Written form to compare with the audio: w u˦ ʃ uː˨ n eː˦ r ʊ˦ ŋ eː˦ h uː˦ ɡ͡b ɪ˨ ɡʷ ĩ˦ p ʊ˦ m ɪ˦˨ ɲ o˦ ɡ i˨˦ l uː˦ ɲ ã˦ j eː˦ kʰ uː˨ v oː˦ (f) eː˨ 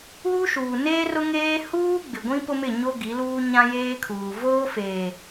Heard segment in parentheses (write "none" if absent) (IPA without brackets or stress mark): f